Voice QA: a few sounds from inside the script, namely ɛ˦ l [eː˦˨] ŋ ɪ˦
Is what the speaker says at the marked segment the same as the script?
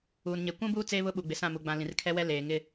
no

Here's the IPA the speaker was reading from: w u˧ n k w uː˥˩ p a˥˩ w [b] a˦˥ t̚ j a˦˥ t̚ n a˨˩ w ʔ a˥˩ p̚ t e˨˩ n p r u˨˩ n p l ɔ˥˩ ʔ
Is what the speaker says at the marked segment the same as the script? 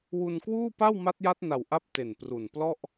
no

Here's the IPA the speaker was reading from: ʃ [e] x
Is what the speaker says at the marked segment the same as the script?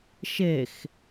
yes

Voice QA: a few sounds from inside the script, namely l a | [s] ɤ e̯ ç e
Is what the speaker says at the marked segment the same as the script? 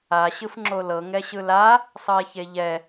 no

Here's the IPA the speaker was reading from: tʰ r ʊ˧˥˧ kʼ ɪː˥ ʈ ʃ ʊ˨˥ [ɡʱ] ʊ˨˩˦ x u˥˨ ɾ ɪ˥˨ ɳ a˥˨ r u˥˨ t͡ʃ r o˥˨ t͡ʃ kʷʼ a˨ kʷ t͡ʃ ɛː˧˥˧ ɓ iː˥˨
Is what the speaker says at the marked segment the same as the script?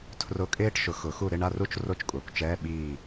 no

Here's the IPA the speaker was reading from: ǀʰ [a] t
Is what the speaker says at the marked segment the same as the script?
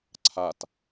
yes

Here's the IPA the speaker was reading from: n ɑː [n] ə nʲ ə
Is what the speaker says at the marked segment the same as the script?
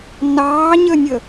no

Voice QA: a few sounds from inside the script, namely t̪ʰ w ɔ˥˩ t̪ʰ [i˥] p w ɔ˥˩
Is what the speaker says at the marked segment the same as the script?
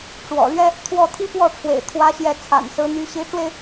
yes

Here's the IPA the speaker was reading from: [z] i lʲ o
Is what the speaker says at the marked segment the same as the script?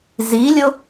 yes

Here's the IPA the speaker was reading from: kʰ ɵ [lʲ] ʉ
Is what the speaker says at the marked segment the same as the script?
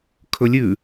yes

